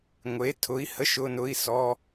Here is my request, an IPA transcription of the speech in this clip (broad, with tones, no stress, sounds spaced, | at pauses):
ŋʷ e˨˥ tʰ ʊ˨˥ i̯ h ə˧˥˧ ʃ ʊ˧˥˧ n ʊ˧˥˧ i̯ s ɔ˧˥˧